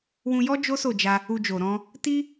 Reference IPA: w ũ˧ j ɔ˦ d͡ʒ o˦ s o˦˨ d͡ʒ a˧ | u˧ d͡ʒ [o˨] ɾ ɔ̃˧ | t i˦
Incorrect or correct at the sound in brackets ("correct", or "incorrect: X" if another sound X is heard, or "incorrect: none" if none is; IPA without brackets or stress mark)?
correct